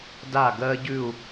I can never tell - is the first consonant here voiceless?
no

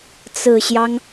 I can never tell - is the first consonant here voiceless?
yes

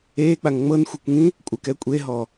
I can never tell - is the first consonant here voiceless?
yes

